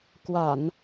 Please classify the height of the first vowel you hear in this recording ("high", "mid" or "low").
low